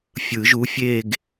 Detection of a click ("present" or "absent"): absent